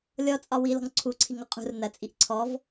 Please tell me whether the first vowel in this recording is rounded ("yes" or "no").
yes